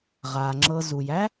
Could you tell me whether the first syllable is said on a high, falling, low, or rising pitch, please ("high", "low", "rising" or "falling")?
low